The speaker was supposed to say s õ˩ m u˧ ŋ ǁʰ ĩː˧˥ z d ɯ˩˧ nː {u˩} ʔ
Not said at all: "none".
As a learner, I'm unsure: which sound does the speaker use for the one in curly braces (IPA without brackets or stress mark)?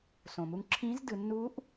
u˧˥